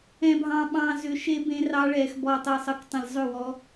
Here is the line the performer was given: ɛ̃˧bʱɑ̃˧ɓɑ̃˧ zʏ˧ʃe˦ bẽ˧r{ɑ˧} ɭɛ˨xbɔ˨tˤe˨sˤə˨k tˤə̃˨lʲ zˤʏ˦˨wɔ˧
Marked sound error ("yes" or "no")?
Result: no